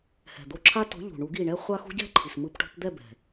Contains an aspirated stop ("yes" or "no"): yes